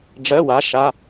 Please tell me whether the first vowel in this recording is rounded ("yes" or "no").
no